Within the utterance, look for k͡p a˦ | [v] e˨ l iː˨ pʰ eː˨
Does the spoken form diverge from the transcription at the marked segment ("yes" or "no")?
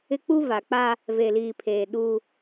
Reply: no